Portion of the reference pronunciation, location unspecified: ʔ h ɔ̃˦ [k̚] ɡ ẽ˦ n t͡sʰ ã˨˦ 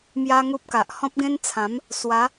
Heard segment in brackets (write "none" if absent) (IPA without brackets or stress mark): p̚